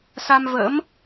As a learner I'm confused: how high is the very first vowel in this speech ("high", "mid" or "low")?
low